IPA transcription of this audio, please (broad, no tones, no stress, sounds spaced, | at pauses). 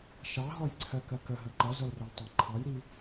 ʃ ɑ ɦ ɔ j ǀʰ ɜ k ɜ k ə ɦ ə ǃ ʌ z ʌ l r ɔ l tˤ ɑ ǃʰ ɑ j ɾ i